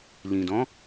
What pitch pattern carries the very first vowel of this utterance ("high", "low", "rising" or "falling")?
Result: low